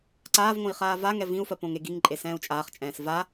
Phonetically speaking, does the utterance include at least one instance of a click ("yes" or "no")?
yes